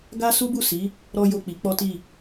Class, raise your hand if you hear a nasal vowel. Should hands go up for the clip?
no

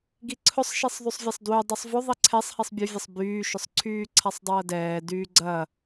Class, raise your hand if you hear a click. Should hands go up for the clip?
yes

